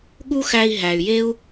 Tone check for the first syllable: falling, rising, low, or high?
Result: high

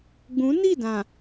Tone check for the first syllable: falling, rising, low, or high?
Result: rising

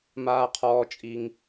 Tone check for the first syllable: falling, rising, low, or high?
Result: low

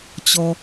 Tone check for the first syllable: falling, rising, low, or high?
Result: low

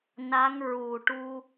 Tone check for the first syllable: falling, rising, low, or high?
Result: rising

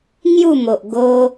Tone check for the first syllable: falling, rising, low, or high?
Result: falling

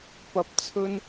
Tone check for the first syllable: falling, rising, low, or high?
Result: low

